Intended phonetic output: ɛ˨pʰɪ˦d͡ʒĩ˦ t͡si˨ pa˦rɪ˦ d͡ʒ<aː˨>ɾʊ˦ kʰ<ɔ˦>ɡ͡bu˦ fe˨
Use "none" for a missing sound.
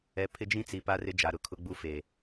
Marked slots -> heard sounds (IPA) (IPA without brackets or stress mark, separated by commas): a˨, ʊ˦